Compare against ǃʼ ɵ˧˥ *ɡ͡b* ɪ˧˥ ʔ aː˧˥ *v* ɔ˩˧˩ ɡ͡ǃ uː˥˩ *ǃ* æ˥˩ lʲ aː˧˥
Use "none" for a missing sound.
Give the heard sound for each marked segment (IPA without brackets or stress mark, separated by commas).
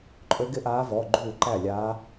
ɡ, v, ǃ